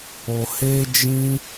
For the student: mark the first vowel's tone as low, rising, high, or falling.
low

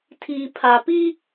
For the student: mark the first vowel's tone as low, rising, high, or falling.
low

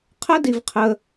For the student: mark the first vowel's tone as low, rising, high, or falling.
high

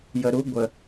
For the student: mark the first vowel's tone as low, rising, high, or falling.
low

